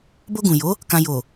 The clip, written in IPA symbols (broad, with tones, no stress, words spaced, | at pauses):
bo˧ ɡũ˨jo˨˦ | kã˨ jo˨